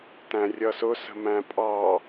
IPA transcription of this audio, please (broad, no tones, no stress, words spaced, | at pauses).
tæ̃rʲʌsʊsə̤ mæ̃pʼɑ